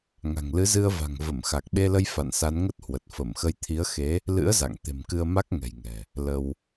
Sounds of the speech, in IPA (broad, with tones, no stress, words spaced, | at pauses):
ŋa̤˨˩ŋlɨ˨˦zɨ˧ə̯va̤˨˩ŋ və˧˩mxa˨˩k̚ɓe˧lə˧j fa̰˧˨nsa˨˦nŋə˦˥t̚hwə˨˩t̚ fə˧˩mxə˧j t̪ʰi˨˦ə̯xe˨˦ | lɨ̰˧˥ə̯za̰˧˨ŋ t̪e̤˨˩mkɨ˧ə̯ma˦˥k̚ ŋɛ̤˨˩jŋɛ̤˨˩ | lə˧w